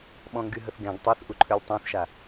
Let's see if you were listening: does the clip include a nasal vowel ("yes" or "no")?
yes